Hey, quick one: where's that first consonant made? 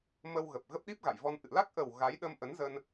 lips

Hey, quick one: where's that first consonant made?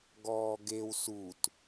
velum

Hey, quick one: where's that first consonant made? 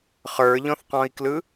uvula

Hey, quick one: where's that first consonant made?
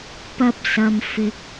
lips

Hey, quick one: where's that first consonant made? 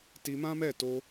tongue tip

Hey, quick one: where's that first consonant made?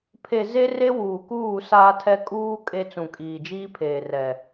lips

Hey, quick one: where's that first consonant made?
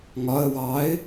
velum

